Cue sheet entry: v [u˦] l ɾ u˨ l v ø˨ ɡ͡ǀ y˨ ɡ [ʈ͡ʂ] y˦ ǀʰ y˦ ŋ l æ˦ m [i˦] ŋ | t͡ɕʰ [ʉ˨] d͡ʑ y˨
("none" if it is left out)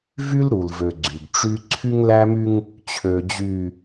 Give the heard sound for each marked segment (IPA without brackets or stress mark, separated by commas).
y˦, ʈ͡ʂ, y˦, ø˨